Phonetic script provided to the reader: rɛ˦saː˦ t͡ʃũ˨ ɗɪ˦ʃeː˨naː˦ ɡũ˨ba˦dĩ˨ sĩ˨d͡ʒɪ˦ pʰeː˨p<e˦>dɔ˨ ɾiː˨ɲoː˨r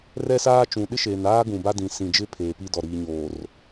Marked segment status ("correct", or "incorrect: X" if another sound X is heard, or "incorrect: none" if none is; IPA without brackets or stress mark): incorrect: i˦